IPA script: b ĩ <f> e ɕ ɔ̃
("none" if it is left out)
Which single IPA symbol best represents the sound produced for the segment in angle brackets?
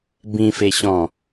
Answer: f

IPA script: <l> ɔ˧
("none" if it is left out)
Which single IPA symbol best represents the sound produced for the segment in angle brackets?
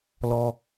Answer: l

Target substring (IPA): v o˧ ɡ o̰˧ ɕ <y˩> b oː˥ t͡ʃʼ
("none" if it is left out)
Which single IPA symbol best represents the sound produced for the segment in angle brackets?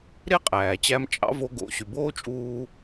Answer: y˩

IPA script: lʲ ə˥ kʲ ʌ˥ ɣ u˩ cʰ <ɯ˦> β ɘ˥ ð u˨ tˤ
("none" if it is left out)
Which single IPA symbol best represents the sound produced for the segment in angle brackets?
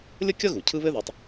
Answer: ɯ˦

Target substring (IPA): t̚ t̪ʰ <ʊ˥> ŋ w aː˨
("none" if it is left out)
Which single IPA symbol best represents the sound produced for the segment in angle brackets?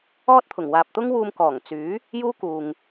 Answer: ʊ˨˩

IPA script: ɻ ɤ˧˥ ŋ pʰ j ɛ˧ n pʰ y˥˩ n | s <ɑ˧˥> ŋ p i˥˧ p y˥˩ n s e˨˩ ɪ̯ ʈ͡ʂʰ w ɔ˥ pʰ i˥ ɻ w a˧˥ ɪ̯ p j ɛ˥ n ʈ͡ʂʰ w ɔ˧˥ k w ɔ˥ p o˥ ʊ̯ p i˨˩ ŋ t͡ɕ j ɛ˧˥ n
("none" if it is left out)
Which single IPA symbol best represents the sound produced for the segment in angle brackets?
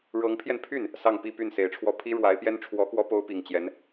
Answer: ɑ˥˧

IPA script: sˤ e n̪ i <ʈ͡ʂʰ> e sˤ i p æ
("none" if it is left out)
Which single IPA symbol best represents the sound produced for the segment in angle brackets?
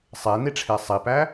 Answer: ʈ͡ʂʰ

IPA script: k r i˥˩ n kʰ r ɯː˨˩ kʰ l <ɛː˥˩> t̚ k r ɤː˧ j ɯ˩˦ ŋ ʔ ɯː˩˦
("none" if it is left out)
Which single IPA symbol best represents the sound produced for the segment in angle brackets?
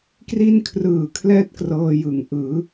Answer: ɛː˥˩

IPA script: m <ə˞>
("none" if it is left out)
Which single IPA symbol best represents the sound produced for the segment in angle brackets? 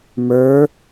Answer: ə˞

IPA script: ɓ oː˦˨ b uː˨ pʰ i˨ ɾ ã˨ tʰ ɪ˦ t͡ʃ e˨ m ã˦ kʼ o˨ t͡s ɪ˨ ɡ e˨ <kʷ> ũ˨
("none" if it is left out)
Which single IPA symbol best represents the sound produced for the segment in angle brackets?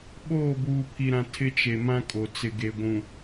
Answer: ɡʷ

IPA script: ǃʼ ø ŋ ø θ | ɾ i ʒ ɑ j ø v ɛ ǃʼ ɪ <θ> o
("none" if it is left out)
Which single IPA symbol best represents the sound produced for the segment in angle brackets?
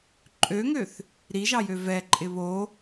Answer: β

